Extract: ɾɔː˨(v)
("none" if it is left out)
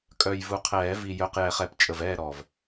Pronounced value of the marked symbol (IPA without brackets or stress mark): v